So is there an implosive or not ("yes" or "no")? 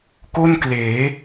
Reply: no